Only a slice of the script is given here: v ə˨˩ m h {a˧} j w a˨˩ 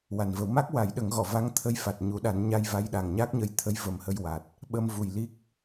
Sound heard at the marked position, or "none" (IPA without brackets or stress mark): ə˧